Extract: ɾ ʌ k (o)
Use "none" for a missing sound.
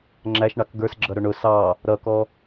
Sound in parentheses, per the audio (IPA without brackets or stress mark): ɔ